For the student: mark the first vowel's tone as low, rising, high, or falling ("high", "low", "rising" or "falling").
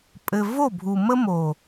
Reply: low